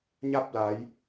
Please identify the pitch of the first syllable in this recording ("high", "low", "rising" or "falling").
falling